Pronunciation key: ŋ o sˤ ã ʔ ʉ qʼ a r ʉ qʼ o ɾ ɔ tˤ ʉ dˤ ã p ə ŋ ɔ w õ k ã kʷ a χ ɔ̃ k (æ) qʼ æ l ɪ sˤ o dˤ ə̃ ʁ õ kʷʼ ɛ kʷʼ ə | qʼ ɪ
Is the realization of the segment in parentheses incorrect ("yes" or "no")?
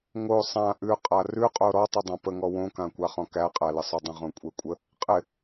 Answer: no